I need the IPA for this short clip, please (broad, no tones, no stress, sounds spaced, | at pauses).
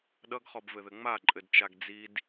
ɗ ʌ ɡ χ ɔ b v ɘ ð ɘ ŋ͡m a ǃʼ ɘ d t͡ʃ a ɡ d͡z i d